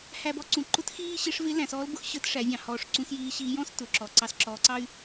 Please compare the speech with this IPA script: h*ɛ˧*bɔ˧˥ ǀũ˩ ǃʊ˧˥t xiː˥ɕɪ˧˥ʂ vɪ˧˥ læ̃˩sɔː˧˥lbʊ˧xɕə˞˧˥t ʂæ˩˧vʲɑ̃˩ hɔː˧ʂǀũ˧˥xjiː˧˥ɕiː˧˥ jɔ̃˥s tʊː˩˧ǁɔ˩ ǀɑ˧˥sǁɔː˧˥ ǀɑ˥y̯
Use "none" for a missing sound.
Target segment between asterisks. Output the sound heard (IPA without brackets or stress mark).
æ˧